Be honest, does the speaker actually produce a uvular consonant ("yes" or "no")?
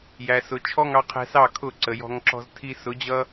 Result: yes